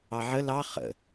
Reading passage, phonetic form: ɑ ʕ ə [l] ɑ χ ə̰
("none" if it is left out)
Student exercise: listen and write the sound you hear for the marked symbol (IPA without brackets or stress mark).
l